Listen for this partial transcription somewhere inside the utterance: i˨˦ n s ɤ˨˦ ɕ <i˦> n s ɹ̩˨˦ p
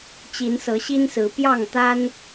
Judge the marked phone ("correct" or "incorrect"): correct